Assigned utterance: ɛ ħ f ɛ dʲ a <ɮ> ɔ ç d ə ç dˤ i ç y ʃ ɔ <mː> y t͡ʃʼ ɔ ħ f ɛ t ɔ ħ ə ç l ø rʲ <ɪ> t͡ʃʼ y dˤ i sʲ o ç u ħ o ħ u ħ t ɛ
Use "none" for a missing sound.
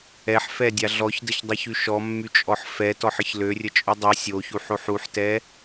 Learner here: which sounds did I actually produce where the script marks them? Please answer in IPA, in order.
ɮ, mː, ə

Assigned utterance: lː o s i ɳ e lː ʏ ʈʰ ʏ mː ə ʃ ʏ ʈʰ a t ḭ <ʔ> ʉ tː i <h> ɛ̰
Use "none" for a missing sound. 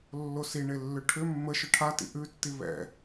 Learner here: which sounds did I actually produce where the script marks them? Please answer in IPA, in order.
ʔ, β

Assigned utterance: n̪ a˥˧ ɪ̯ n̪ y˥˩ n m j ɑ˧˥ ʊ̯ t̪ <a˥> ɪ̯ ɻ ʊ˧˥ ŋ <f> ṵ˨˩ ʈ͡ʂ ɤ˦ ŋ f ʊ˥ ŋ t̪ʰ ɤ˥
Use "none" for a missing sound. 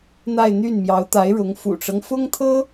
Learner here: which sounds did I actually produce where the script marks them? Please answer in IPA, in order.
a˧˥, f

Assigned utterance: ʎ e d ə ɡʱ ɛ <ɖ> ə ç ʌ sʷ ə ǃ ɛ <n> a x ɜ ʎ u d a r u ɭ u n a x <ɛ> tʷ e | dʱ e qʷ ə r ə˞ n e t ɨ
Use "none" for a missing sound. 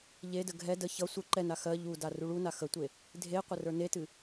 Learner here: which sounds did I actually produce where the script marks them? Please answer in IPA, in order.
d, n, ə

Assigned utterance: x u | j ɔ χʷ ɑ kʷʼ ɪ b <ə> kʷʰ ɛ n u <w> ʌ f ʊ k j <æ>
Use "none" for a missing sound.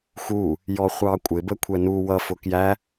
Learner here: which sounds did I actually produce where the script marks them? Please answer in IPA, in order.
ə, w, æ

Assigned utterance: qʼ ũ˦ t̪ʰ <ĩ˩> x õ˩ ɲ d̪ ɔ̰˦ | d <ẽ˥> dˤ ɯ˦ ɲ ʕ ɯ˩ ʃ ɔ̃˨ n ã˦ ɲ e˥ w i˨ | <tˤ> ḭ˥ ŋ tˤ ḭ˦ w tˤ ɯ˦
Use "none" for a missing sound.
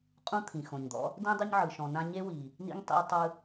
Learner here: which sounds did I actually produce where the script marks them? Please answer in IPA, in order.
ĩ˩, ẽ˥, n

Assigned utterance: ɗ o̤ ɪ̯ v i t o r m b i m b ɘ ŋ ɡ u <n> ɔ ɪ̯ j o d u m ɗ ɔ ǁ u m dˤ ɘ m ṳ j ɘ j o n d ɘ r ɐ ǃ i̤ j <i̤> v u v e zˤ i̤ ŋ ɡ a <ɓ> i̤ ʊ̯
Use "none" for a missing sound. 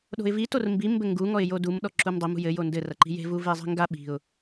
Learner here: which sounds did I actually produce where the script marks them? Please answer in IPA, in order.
ŋ, e̤, ɓ

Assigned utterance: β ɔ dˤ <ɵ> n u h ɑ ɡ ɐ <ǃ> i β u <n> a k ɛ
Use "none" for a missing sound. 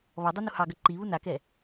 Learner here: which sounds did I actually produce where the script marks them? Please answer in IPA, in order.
ɵ, ǃ, n

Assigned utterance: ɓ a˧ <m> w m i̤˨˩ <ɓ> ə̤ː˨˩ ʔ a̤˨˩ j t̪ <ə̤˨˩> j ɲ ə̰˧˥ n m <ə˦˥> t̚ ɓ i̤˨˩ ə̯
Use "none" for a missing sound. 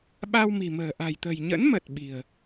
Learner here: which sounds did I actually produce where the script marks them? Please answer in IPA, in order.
none, m, ə̤˨˩, ə˨˩

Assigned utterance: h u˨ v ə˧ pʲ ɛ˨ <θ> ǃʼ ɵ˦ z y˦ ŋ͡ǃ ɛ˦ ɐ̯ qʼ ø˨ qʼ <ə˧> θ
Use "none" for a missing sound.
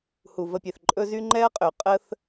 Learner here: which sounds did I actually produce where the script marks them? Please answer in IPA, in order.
θ, ə˦

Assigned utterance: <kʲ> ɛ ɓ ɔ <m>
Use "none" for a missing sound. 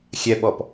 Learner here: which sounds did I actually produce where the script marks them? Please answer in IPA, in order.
xʲ, p

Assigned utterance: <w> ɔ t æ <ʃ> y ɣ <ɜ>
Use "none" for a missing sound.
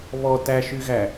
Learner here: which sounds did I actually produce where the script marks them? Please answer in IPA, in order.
β, ʃ, æ

